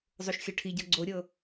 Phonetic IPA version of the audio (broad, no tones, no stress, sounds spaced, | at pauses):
zˤ o ʃ xʲ ɤ ʈʰ i ɟ ɤ ɡ͡ǀ o ɾʲ ɤ